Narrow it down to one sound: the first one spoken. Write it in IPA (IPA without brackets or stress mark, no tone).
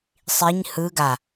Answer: sˤ